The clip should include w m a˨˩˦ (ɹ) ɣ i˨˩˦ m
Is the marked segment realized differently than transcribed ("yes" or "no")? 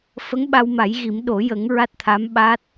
yes